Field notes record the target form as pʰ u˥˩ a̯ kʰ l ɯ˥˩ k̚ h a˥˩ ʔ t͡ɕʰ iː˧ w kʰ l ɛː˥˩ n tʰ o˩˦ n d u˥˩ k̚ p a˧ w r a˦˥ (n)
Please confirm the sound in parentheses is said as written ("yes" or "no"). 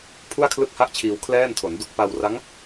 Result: no